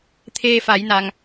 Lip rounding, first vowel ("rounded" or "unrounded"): unrounded